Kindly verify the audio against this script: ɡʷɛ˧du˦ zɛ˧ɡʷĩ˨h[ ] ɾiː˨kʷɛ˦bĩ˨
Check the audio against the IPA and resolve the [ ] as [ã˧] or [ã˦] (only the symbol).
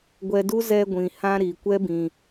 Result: ã˧